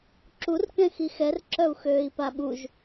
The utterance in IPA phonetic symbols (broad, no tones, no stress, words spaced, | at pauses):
ǁurkɛ̃ xixɛrǁœu̯xøːi̯ paɓuʒ